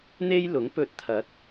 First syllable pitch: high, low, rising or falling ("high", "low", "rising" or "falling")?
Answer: high